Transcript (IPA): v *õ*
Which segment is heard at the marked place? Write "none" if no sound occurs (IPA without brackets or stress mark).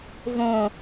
õ